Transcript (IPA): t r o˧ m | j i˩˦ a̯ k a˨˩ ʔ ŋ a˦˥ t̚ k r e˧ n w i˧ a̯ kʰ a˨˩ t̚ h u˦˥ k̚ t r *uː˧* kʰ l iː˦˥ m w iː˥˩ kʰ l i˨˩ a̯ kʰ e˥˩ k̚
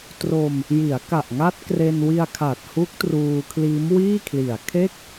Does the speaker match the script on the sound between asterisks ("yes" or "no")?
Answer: yes